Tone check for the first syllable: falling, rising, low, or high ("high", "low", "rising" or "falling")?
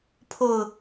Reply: falling